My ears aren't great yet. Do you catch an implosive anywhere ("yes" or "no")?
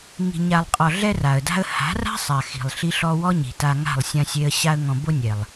no